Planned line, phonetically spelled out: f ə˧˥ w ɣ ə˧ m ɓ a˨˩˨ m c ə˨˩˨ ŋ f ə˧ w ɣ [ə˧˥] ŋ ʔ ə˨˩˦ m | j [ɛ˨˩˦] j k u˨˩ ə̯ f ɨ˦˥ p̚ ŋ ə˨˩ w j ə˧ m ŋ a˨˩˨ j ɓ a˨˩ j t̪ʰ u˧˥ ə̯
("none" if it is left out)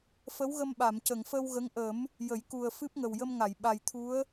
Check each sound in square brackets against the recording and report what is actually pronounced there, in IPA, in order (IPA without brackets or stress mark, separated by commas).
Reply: ə˧˥, ə˨˩˦